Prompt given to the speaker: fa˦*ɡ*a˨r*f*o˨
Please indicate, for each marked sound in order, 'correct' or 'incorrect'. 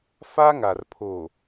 incorrect, incorrect

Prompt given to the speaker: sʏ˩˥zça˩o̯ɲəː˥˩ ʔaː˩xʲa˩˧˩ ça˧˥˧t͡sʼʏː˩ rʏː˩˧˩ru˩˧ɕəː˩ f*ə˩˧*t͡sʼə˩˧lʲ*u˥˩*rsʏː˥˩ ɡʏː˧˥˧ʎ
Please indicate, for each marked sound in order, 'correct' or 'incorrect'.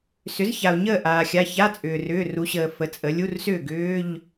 correct, incorrect

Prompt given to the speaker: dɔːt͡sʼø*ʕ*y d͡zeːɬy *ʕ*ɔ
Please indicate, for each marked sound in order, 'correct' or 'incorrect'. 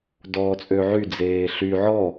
correct, correct

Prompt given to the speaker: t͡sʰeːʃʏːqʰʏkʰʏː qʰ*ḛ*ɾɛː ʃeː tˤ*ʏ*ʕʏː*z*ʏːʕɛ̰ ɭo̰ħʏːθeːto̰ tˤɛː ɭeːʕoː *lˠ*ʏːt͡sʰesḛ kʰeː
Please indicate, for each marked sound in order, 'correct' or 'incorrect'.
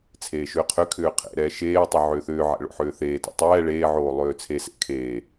correct, correct, incorrect, correct

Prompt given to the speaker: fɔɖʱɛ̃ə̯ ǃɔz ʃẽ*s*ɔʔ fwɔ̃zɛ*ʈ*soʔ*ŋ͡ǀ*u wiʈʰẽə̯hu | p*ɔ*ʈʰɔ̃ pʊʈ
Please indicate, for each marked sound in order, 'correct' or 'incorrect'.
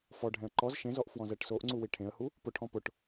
incorrect, correct, correct, incorrect

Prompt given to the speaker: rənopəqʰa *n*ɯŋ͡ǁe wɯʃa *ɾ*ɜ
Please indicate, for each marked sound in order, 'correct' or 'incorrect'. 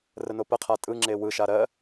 incorrect, correct

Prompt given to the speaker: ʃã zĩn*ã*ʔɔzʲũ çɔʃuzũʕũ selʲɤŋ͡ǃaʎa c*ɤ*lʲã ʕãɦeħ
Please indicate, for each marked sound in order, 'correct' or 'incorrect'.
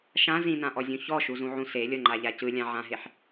correct, incorrect

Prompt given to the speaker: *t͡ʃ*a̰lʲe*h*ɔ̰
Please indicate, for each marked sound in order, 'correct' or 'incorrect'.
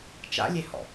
correct, correct

